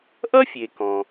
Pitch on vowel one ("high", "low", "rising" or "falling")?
high